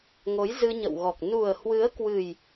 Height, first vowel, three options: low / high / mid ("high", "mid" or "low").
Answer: mid